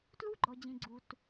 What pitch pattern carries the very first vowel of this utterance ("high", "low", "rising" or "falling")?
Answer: high